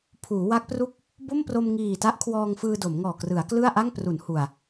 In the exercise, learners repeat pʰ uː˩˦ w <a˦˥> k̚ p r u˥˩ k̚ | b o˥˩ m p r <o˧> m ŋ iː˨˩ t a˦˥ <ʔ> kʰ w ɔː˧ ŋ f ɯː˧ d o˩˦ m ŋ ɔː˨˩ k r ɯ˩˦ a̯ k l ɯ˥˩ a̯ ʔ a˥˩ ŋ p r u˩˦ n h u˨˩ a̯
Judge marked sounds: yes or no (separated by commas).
yes, yes, yes